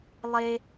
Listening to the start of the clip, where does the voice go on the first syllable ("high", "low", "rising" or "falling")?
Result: high